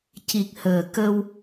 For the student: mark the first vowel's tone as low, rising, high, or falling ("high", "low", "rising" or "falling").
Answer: low